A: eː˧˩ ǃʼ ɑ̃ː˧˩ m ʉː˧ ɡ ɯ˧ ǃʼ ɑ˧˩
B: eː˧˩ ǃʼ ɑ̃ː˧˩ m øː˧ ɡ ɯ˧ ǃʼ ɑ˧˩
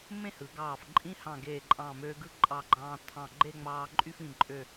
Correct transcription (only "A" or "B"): B